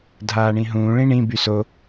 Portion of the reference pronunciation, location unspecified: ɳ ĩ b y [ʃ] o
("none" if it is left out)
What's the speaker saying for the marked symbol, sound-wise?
s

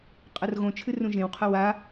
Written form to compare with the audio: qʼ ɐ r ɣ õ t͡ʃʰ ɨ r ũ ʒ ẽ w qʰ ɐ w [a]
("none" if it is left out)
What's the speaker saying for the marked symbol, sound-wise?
a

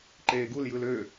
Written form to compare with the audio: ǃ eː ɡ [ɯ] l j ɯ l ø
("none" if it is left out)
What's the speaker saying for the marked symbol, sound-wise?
u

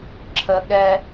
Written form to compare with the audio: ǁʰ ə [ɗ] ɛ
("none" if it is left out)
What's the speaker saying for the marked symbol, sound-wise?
ɠ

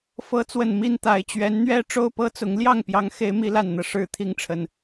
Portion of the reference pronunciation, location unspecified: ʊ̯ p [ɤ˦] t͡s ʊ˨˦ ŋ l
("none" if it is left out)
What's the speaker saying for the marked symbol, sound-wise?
ɤ˦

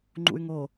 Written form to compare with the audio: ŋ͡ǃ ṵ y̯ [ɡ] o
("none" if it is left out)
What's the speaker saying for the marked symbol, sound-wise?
ŋ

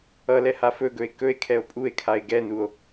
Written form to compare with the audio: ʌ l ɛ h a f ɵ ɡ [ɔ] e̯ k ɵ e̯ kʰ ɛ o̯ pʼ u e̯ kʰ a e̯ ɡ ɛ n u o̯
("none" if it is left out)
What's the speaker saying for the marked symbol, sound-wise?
ɵ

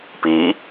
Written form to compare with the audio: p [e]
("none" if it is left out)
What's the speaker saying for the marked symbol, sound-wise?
i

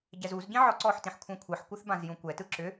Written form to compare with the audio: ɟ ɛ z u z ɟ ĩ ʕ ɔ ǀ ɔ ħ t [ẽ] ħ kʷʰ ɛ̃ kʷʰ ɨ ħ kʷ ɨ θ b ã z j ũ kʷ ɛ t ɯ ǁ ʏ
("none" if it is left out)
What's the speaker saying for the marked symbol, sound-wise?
ĩ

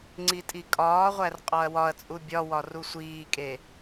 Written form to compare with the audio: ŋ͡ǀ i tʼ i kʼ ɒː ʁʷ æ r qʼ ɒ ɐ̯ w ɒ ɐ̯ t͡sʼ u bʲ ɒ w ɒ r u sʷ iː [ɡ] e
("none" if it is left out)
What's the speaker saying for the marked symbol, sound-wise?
kʼ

